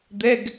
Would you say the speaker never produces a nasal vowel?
yes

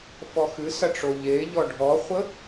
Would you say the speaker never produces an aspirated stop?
yes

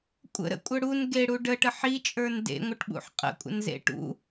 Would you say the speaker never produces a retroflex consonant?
no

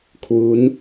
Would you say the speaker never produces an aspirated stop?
no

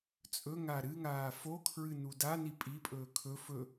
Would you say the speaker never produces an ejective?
no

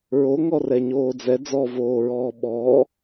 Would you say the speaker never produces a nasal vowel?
yes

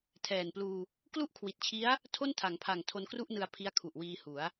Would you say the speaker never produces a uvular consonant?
yes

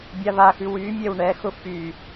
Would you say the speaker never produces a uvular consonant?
yes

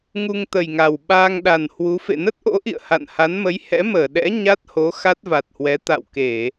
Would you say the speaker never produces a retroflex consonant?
yes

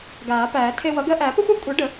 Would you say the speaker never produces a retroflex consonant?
no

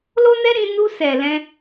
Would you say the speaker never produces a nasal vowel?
no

